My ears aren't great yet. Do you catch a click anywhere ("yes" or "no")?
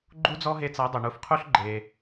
yes